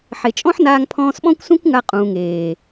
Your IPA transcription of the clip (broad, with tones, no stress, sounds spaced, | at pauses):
ħ e˨ t͡ʃʼ ɔ̃˦ ħ n aː˧ ŋ pʰ ɔ̃ː˧ s ɓ ɔ̃˦ kʷ s ũ˦ kʷ ŋ a˧ qʼ ũː˨ ŋ eː˨